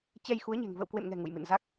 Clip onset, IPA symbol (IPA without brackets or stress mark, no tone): t͡ɕ